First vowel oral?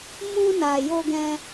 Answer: no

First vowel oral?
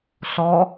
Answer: yes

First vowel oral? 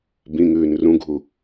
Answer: no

